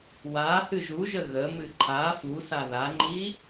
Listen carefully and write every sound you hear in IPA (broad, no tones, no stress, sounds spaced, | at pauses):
w a h ɨ ʒ u ʒ ə ɣ ə m ɨ ǃʰ a f u s a ð a ŋ͡ǃ i